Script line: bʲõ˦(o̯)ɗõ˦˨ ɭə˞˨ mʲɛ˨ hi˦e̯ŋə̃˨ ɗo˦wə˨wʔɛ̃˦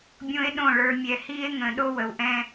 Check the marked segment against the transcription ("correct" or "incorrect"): incorrect